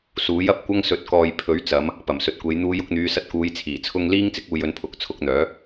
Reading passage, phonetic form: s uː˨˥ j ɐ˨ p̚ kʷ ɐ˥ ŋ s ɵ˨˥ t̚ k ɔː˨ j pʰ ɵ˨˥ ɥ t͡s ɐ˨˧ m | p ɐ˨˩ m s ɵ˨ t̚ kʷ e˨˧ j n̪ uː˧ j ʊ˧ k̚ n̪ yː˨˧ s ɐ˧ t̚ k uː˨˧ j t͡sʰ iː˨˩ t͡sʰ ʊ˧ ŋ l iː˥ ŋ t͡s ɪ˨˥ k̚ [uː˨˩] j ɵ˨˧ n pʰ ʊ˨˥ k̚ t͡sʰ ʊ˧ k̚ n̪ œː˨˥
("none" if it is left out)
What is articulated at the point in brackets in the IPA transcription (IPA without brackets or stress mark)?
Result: uː˨